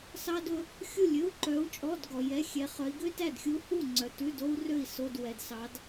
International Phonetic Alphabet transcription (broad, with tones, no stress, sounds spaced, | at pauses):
s ɑ˥ d ɵ˥ | xʲ u˥˨ lʲ ɵ˧˥˧ u̯ ǃ œ˧˥ u̯ t͡ʃʼ ɔ˧˥˧ d ɡ ɔ˨ j ɛ˧˥˧ xʲ ɛ˧˥ χ œ˧˥ i̯ ɡ ø˥ t æ˥˨ d xʲ u˧˥ h u˥˨ ŋ͡ǀ œ˨ t ʉ˧˥˧ d o˥ u̯ r ø˥˨ i̯ s o˧˥˧ d w ɛ˨ d s ɑ˧˥ d